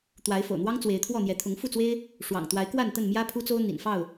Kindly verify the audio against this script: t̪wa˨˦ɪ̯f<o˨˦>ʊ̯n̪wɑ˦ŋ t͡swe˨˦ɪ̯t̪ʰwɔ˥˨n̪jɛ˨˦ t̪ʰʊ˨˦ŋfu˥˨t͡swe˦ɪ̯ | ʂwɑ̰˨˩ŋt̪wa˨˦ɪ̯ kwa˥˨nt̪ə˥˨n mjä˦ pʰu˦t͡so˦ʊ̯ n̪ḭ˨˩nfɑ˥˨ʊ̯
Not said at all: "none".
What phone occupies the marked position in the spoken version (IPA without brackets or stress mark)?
o̰˨˩